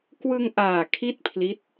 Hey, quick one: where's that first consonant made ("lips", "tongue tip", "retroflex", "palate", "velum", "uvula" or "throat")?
velum